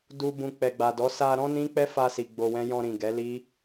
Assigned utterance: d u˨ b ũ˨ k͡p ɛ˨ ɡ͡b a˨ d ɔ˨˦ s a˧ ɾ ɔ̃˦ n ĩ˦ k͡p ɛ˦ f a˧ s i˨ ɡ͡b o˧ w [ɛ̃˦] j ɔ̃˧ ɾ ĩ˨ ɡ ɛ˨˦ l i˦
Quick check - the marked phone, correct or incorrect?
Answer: correct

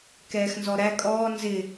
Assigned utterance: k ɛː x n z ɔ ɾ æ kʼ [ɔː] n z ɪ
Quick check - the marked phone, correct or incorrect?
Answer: correct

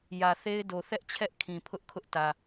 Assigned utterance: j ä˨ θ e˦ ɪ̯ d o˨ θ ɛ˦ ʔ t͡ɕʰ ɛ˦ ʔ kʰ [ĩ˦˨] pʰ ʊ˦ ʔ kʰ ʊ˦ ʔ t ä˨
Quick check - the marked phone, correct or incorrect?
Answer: incorrect: ĩ˨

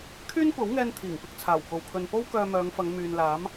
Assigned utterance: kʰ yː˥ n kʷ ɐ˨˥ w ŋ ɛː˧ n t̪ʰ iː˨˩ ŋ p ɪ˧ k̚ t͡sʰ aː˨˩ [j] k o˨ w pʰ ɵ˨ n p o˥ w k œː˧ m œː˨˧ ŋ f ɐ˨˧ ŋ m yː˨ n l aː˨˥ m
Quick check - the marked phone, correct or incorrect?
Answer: incorrect: w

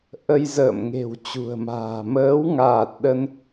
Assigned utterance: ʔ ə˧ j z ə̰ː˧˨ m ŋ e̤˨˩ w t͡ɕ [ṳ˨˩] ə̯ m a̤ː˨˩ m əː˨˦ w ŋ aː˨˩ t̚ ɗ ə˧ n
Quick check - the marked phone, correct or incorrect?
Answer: correct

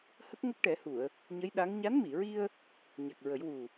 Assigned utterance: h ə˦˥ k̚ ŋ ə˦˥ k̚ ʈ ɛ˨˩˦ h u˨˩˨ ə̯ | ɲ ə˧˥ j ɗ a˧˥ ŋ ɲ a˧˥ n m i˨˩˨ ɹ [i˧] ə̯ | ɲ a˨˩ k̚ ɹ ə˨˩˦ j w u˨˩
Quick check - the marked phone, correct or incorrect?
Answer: correct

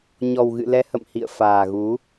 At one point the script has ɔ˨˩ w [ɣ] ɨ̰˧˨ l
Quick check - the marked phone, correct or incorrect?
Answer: correct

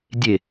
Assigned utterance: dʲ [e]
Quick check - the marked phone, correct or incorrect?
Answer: correct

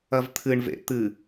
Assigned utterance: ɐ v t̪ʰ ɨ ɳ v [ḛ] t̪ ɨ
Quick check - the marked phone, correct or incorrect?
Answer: correct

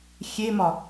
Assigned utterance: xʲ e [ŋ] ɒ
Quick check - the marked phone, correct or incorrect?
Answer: incorrect: m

